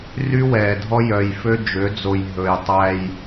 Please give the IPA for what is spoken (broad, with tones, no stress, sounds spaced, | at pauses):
r y˦ w ɛː˨ dʱ ɔ˦ j œ˨ j f ø˦ d͡ʒ ø˨˦ d͡z o˨ j ɦ ɵ˨ j tˤ æ˦ j